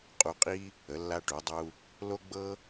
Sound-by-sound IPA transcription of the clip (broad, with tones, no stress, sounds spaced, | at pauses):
qʼ u˧ qʼ i˥ | ə˩˧ lː a˧ ʈ u˩˧ dˤ u˧ | l o˥ ɡ͡b ɤ˥